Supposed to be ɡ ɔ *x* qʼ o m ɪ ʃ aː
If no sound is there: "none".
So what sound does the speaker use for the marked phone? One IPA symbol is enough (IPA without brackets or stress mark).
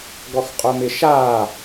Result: x